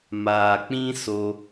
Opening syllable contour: low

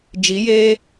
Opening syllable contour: rising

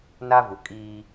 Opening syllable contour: high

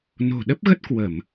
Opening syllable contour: low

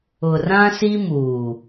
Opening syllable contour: low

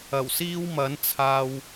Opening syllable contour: low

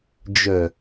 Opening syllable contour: low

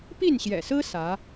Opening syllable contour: falling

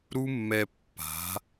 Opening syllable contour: high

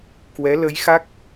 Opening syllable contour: rising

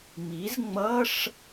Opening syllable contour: rising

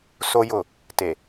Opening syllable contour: high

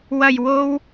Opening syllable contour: low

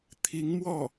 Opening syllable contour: rising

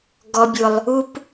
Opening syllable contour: low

